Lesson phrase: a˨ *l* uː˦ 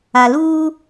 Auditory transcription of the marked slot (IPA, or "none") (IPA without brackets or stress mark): l